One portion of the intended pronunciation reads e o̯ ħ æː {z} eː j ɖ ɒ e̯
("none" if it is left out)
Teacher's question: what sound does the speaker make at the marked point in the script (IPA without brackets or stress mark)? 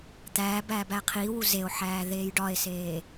ð